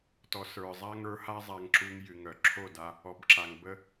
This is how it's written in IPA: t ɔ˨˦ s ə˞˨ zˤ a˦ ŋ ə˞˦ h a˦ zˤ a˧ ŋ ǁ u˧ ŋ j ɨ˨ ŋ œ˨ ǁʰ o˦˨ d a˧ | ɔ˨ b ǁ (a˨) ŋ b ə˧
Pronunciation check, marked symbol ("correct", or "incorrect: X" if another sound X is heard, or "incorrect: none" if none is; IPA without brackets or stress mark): correct